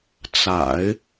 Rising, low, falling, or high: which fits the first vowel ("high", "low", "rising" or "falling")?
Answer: low